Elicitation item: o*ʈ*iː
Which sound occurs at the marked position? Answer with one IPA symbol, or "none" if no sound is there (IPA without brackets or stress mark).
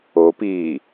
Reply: p